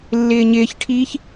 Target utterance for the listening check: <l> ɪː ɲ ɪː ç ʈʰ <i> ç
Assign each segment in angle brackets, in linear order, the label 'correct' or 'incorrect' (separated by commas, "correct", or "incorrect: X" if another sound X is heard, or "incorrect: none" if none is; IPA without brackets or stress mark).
incorrect: lː, incorrect: iː